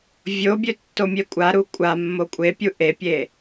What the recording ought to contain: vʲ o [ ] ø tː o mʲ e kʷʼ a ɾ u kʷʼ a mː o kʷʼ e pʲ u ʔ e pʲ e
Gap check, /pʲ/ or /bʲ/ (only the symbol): bʲ